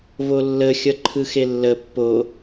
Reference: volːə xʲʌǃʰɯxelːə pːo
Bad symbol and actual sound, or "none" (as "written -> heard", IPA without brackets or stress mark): none